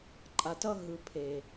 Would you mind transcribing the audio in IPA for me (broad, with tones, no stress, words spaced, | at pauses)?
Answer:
ǃʼa˧tʌ˦ ɦɯ˦ pʰe˧